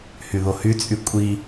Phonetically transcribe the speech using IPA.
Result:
h y ð o h y t͡sʼ y kʷʼ i

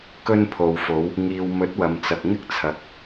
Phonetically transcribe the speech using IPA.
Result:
k ɵ˧ n pʰ o˨ w f o˨˧ w | ŋ iː˨ w m ɵ˨˥ t̚ w ɐ˨ m t͡s ɐ˨ k̚ ŋ ɪ˥ k̚ t͡sʰ ɐ˨˥ k̚

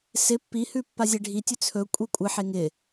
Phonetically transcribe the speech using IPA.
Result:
s ɪ pː i h ʉ pː a zʲ e ɖʱ i tʲ ʉ t͡sʰ ɵ kʷʼ i kʷʼ ɪ ħ e ŋ ɪ

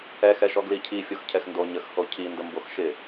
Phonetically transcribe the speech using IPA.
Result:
ɛ x ɛ ʃ ɔ ɡ l i cʰ i fʲ o x cʰ ɛ x n d o ɲ ə x h o cʰ i n d ə m b o x ʃ ɪ

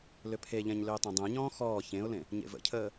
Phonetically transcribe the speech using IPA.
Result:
l ʏ pʰ e ʎ ɛ̃ ɲ l ʏː tˤ ɛ̃ dˤ ɛ̃ ɲ ɔ̃ː x ɔː ç ẽ ʊ̯ l ẽ | ɲ ḛ v ə̰ cʰ əː

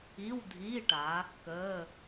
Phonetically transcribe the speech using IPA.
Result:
i˧˥˧ w dʱ iː˧˥˧ ʈ a˩˧ | k əː˧˥˧

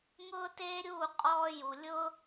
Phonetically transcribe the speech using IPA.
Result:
ŋ ʊː˦ t eː˦ ɾʲ uː˦˨ qʼ ɔː˧ j u˨ lʲ ʊ˦

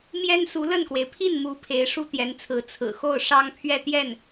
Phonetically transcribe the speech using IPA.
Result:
m j ɛ˥ n s u˧˥ l ə˥˩ n k w e˩ ɪ̯ pʰ i˥˩ n m u˧˥ pʰ e˧˥ ɪ̯ ʂ u˥ t̪ j ɛ˧˥ n t͡sʰ ɹ̩˧˥ t͡sʰ ɹ̩˨˩ x o˥˩ ʊ̯ ʂ ɑ˥ ŋ pʰ ɥ ɛ˥˧ t̪ j ɛ˥˩ n

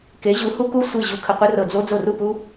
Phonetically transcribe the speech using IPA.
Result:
k e˩˥ ʑ u˩˥ h u˦˥ k u˥˩ sʷ i˥˩ ʑ u˧ kʰ ə˧ qʷ ə˦˥ r ɤ˧˩ d͡z o˦˥ d͡z o˥˩ r u˥˩ p u˦˥

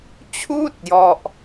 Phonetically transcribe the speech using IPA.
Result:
t͡ɕʰ uː˥˩ t̚ j ɔ˥˩ ʔ

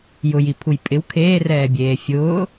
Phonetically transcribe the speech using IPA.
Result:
j ʊ j i pʰ u j pʼ ɪ w kʰ eː r ɛː bʲ eː fʲ ʊː

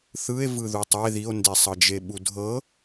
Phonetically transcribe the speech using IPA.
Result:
θ ɯ e̯ v ɯ ð u tˤ e ð i o̯ n d e sˤ ɤ d͡ʒ e ɓ u dʱ ɤ

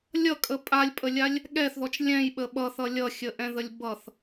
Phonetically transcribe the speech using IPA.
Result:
lʲ ʌ kʼ ə pʼ a lʲ pʼ ə lʲ a lʲ | ɠ ɛ θ ð ɔ t͡ʃ lʲ ɛ̃ j ɓ ə ɓ ʌ θ ʌ lʲ ʌ xʲ ə ʔ ɛ̃ ð ə lʲ b ʌ θ

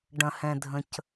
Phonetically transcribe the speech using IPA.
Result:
ɖ ɐ̃˨ h ɛ̃˨ dʱ ə̃˨ c

